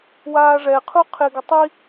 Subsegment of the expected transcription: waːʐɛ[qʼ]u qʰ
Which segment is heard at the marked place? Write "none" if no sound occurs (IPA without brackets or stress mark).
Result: qʰ